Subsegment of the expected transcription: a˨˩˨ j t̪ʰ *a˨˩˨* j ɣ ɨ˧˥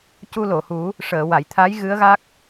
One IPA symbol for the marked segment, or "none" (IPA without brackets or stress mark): a˧˥